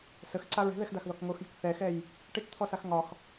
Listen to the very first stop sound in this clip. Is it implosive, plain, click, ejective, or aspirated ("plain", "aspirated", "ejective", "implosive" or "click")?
click